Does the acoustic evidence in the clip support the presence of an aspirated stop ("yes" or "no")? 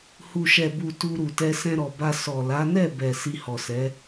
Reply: no